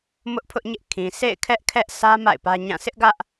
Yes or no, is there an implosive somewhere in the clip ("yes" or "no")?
no